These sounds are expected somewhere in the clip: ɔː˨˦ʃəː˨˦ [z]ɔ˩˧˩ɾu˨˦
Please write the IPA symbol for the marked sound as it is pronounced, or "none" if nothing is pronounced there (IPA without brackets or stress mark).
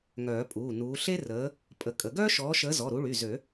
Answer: z